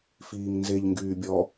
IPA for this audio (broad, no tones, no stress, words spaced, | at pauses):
fiːŋnzeʎ ŋɡyːbʲɔ